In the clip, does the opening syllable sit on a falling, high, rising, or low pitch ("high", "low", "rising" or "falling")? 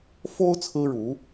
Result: high